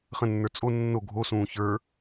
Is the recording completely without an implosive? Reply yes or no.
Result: yes